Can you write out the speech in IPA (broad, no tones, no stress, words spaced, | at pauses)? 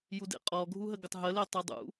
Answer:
judḛqʼɔ ɡʱuɦəɡətˤɦə letˤedˤṵ